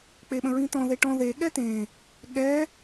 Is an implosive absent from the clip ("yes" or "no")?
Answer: no